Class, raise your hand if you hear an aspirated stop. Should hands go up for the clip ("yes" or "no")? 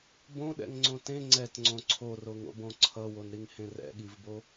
yes